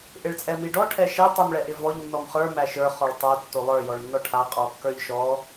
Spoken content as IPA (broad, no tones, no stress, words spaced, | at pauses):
ʔɪɭt͡sʼɛmiɖɔ ʈʰɛʃɛ tˤimɭɛʔɪvɔʎ nːɔmχə˞ mæʃə˞ χɔɭtˤo tːolˠə˞ jɔɭnːɔʈʰa qʼɔkːə˞ʎʃɔ